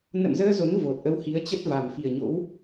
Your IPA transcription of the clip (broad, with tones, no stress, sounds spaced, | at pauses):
n ə̰˧˨ m z əː˧ z o˨˦ n v o˨˩ t̚ ʔ ə˧ w h i˨˦ ə̯ t͡ɕ ə˦˥ t̚ v a˨˩ m f i˨˩ ə̯ ɲ o̰˧˥ w